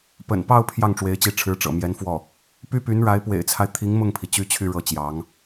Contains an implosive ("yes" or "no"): no